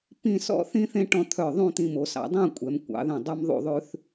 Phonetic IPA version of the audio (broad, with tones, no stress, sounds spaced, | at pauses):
p ĩ˥˧ s ɔ̰˥ θ ĩ˥ θ ẽ˥ ʈ ɔ̃˥˧ t̪ʰ œ˧˩ ðˤ ũ˥˧ t̪ ĩ˧ m o˩˧ s ɑ̰˩˧ dˤ ĩ˥˧ kʷʼ ɛ˩˧ m kʷ ɑ̰˩˧ ð ɛ̃˧˩ dˤ ʉ˥ m ðˤ ṵ˥˧ ðˤ ʉ˥ θ